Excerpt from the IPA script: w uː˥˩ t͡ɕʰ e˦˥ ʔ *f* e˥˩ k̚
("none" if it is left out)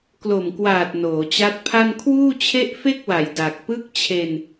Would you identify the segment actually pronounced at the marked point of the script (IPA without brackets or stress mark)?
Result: f